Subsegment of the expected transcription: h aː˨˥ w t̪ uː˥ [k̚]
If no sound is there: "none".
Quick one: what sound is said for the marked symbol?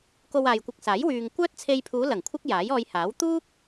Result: k̚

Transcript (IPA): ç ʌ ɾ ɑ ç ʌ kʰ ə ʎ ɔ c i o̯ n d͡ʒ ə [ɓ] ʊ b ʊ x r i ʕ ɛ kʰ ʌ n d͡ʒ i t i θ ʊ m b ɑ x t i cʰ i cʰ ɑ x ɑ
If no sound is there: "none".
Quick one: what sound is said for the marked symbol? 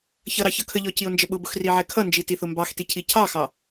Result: ɓ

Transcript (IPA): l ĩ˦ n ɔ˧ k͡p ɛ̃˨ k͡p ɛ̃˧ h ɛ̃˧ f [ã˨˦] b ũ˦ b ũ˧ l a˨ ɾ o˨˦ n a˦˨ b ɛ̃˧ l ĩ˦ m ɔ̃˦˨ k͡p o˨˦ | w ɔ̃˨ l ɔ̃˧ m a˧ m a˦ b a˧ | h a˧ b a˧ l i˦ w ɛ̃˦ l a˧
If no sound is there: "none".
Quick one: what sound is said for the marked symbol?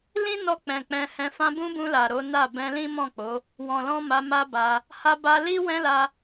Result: ã˧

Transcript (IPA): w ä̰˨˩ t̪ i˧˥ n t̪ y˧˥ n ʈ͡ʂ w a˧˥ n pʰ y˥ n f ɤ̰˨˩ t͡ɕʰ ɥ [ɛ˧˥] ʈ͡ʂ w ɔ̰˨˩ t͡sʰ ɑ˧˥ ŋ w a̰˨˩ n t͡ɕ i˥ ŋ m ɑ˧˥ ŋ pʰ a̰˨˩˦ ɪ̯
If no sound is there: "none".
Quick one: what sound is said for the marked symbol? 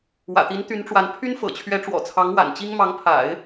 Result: ɛ˧˥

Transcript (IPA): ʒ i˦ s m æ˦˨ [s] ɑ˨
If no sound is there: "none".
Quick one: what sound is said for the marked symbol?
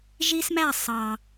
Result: sˤ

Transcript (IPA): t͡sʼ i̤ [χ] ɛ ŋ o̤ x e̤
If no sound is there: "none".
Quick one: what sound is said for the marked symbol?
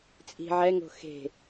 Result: ʕ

